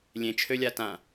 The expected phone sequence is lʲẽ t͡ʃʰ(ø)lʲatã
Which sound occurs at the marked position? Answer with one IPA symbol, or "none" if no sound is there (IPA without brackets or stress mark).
ø